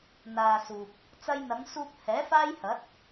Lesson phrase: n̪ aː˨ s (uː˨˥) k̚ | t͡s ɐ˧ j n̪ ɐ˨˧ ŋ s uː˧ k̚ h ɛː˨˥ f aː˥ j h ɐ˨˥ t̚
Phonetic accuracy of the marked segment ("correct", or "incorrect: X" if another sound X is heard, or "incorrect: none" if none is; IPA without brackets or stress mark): incorrect: uː˨